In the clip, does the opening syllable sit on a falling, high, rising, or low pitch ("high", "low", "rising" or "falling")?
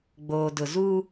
low